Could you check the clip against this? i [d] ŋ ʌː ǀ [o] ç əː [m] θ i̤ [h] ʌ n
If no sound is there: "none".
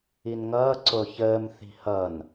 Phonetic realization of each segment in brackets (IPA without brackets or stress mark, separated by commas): n, o, m, h